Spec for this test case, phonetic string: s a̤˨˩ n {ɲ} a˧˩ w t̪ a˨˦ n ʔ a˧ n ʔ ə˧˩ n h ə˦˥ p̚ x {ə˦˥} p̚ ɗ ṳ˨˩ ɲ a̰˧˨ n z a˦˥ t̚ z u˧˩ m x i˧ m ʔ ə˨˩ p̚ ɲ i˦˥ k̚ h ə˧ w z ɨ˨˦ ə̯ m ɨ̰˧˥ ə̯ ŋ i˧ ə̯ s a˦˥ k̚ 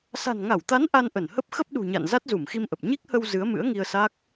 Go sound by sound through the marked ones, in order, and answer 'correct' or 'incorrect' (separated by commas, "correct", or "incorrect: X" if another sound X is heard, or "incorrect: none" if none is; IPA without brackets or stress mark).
incorrect: ŋ, correct